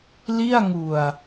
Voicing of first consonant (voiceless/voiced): voiced